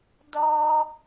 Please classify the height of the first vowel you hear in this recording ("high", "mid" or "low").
mid